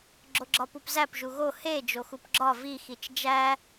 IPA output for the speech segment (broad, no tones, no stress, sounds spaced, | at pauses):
ɡ͡ǁ o ɡ͡ǁ ɒ p u p z æ p ʒ u ɣ o h e d͡ʒ o x u p ɡ͡ǁ ɒ v i x i t͡ʃ d͡ʒ æ